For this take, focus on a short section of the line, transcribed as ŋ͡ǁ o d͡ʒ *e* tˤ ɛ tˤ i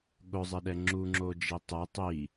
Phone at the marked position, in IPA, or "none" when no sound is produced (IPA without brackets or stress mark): i